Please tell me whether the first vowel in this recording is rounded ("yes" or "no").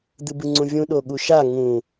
no